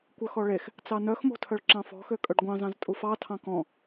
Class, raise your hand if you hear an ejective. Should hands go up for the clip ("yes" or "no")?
yes